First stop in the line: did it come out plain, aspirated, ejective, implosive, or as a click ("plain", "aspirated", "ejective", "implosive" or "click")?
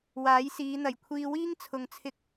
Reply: aspirated